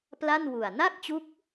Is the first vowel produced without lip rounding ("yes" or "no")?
yes